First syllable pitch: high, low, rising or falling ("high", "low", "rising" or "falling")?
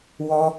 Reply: high